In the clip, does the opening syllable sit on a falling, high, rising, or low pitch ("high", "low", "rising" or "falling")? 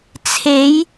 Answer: rising